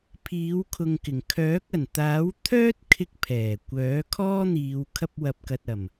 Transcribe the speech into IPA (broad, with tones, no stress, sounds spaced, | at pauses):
pʰ iː˨˥ w kʰ ʊ˨ ŋ k ɪ˨˩ ŋ kʰ œː˨˥ k̚ ɐ˨˩ n t̪ aː˨˥ w t̪ʰ œː˥ t̚ kʰ ɪ˧ k̚ pʰ ɛː˨˩ kʷ œː˨˥ kʰ ɔː˥ n̪ iː˨˧ w kʰ ɐ˥ p̚ w ɐ˧ p̚ k ɐ˧ t̚ ɐ˨˩ m